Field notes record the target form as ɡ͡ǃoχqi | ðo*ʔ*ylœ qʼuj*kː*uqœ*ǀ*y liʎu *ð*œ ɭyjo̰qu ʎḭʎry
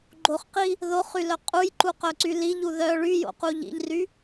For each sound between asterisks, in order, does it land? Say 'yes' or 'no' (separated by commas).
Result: no, no, yes, yes